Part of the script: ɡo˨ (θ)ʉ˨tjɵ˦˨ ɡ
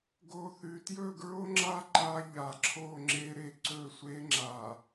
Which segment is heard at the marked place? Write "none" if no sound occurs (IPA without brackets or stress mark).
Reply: θ